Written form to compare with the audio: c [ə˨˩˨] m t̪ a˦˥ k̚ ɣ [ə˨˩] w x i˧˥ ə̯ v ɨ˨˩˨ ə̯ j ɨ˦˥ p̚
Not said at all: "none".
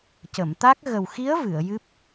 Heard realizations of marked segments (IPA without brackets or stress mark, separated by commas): ə˨˩˨, ə˨˩